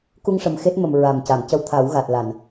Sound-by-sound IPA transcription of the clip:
k u˧ ŋ ʂ ə˨˩ m x e˦˥ t̚ m ə˨˩ m ɹ a˨˩ m c a˨˩˨ m c ə˧ w t̪ʰ a˨˩˦ w ɣ a˨˩ t̚ l a˨˩˨ n

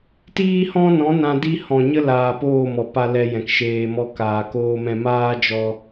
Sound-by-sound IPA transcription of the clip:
t iː˦ h ɔ̃˦ n ɔ̃˨˦ n ã˧ d i˦ h ɔ̃˨ ɲ ə˦ l aː˨ p oː˦˨ m ɔ˨ p a˧ l ɛ˧ j ɛ̃˨ k ʃ eː˧ m ɔ˧ k aː˨ k oː˧ m ɛ̃˧ m aː˦ d͡ʒ ɔ˧

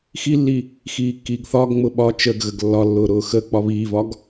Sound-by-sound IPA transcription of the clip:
x i lː i | x iː kː iː ɡ θ ɒː ɡ ŋ͡m ʊ ɓ ɒ t͡ʃ ə ɡ ɣ ə ɡ lː ɒ lː ʊː ɾ ʊː x ə k͡p ɒ β iː v ɒ ɡ

